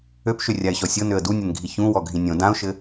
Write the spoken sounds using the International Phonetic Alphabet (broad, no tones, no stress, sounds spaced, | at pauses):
ø p ʃ ø rʲ a ɪ̯ ɕ ɔ sʲ ɤ n ø ə̯ d u nʲ ɘ n ɡʱ i ç ũ w ɔ ɡʱ ĩ nʲ õ d ã ʊ̯ ʃ ɘ